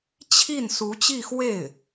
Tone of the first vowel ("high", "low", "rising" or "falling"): falling